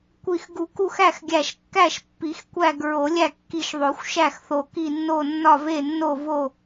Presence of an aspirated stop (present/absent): absent